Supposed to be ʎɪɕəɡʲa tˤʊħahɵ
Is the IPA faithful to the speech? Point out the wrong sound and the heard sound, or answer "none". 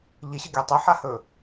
ʊ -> ɵ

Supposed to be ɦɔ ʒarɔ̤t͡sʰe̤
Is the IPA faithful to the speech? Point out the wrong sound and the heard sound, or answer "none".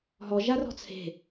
none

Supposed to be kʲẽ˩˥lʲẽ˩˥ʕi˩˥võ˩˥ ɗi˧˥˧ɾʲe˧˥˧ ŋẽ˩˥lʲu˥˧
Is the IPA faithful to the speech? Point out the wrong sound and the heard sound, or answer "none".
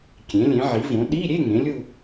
none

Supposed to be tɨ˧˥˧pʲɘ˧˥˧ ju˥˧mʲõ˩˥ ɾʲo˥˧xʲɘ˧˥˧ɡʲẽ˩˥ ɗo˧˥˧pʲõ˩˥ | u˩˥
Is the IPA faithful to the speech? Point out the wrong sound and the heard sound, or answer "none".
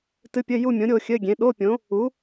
none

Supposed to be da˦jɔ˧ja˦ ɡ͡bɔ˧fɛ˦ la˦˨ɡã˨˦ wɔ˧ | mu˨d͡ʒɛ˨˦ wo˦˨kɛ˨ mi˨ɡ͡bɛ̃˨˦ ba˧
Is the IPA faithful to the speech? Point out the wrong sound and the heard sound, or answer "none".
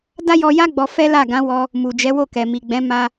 b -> m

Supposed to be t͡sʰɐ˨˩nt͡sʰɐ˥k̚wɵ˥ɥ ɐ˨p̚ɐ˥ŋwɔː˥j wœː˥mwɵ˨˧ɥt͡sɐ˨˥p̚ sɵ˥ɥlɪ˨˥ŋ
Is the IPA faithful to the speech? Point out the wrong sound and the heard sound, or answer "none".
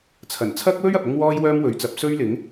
none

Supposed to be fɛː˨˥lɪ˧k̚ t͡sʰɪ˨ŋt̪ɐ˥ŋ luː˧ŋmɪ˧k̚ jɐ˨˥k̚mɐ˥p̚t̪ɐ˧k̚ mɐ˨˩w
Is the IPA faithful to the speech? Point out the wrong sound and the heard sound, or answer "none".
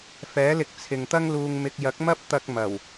none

